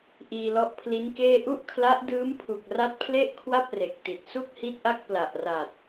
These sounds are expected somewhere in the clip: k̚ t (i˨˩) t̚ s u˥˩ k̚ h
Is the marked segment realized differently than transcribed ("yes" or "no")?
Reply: no